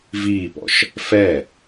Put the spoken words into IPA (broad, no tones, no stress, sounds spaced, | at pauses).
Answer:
v iː p ɔ̰ ʃ | f ɛ